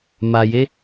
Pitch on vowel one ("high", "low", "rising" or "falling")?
low